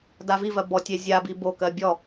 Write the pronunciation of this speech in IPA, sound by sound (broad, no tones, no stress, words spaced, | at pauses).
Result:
davivɜ bɔtʲe zʲabi bokɜ bʲɔ